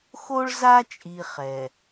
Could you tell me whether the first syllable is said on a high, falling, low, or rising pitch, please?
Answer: high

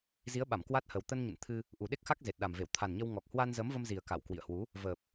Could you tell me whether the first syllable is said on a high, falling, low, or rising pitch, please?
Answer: rising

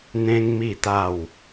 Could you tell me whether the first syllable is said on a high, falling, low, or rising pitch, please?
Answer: high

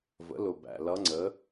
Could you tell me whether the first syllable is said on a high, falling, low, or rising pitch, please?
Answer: rising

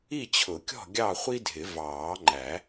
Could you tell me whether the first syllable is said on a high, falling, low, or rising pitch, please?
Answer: falling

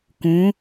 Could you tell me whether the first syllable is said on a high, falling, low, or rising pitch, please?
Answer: rising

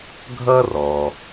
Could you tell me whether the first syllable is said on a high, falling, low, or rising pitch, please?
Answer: high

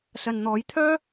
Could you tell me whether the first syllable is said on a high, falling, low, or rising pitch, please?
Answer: low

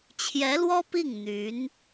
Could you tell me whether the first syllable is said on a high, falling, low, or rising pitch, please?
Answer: rising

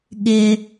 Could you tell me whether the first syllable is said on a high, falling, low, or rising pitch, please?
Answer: low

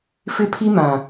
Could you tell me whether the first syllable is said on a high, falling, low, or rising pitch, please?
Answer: high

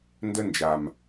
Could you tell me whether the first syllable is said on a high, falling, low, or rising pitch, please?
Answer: high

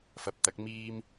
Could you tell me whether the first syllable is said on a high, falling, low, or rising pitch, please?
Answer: rising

